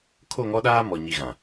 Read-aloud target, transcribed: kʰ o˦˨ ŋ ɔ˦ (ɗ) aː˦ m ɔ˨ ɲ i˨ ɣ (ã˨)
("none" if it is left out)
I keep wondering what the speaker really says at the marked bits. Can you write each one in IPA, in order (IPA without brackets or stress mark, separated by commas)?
ɗ, ã˨